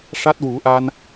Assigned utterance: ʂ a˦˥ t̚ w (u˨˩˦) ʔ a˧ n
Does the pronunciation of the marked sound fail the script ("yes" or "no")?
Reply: no